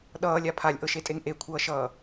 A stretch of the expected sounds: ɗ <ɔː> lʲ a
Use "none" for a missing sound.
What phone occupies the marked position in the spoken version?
ʌː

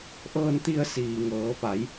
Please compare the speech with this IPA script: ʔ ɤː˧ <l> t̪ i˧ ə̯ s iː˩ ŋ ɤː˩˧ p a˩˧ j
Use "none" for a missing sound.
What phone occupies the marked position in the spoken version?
n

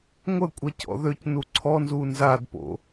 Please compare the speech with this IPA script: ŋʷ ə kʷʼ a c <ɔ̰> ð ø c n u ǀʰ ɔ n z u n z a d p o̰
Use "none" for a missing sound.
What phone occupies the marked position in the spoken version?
ɔ̰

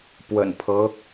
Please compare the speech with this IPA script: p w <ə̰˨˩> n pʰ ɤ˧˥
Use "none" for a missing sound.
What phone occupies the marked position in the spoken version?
ə̰˨˩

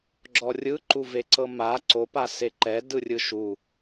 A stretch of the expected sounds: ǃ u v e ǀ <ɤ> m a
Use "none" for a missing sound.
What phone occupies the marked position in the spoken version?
ɤ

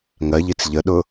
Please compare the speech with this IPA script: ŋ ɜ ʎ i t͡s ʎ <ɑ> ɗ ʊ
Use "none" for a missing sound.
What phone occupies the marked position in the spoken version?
ə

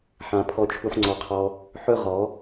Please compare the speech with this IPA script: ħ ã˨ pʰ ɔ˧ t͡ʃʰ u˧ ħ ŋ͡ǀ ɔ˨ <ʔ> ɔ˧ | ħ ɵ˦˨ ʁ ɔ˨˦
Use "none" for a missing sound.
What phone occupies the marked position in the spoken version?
qʰ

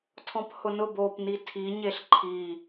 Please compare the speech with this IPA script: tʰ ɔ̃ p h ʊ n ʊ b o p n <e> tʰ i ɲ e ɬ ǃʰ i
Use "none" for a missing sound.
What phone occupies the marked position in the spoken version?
i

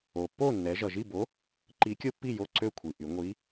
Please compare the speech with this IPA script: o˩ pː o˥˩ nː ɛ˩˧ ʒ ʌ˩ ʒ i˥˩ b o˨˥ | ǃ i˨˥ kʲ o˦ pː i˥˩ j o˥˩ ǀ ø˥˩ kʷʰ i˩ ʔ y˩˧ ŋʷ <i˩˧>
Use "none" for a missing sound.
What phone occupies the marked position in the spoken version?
i˨˥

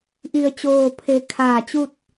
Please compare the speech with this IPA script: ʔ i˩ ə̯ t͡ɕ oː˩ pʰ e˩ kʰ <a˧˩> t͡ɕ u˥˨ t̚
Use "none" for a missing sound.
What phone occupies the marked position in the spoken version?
aː˧˩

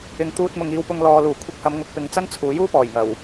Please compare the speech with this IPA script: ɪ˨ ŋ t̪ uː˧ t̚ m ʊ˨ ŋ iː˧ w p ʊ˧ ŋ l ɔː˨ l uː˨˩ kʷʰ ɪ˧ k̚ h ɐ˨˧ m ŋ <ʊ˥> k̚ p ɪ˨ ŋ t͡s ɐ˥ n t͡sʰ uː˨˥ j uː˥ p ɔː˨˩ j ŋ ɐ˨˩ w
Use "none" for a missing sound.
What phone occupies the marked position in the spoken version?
ʊ˨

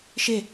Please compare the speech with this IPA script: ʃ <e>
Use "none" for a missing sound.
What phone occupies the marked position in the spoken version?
e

